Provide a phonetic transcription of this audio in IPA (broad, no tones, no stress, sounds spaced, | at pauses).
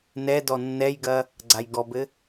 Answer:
n ɛ d ɔ nː ɛ j ɡ ɐ | ɡ͡ǀ a j ɡ ɔ b ɘ